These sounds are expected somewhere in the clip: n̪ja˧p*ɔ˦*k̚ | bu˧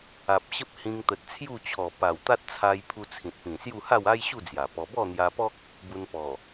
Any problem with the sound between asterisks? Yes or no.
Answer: no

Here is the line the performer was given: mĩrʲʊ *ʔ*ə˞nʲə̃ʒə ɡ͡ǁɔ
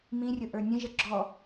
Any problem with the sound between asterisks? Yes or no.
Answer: no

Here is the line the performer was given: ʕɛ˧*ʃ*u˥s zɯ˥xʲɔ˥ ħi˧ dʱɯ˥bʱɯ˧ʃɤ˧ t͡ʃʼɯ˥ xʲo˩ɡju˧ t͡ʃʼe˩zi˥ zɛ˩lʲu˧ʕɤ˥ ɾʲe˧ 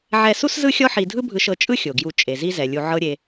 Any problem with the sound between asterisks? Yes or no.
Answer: yes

